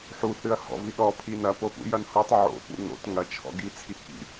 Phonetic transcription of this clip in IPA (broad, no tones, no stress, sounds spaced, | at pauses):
ħ u θ ɨ ɐ̯ h ɔ̰ v i ɗ ɔ pʰ i n ɐ p o p ṵ j ɐ n h u tˤ ʕ o̰ p ṵ n o̰ t ŋ ɐ t͡ʃʰ ɔ̰ ɡ i t͡sʰ i k ḭ